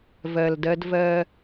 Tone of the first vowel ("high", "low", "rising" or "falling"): low